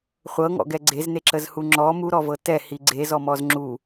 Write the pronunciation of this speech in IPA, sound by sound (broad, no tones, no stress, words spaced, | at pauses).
χʷɤŋɔ̰ ɡɛɡ͡ǀezne ǁəzhuŋ͡ǁɔ muɾɔvɤ tɛ hiɡ͡ǀezɔ mɔzŋ͡ǁu